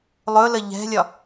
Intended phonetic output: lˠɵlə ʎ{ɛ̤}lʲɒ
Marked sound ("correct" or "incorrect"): correct